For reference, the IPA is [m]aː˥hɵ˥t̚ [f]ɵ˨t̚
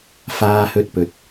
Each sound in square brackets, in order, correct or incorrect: incorrect, incorrect

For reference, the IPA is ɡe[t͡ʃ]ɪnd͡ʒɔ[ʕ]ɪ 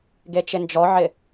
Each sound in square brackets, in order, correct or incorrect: correct, correct

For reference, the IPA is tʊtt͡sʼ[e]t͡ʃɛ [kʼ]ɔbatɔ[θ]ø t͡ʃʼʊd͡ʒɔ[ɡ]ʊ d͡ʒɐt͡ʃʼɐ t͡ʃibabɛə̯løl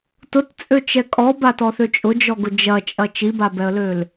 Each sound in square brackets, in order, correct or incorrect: incorrect, correct, correct, correct

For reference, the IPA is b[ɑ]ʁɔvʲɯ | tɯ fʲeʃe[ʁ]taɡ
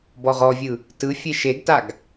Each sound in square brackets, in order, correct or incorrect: incorrect, incorrect

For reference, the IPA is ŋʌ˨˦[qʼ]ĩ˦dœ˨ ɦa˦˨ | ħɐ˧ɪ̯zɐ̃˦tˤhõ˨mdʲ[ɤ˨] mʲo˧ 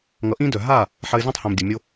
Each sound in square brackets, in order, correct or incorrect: incorrect, incorrect

